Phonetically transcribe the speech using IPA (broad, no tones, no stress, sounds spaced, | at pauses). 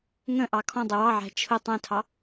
ŋ ə̃ ʔ ɑ kʰ ɔ̃ dˤ ɪ w ɑ ʕ æ̤ t͡ʃʰ ʊ tˤ æ̃ tʰ ɑ